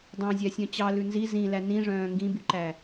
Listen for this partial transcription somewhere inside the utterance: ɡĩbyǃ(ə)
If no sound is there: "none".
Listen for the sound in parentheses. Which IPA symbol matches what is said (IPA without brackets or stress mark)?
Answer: æ